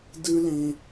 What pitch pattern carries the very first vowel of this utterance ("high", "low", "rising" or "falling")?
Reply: high